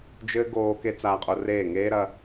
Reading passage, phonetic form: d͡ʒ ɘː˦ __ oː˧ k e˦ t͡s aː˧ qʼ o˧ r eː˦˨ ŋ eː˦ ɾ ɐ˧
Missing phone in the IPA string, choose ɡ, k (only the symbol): ɡ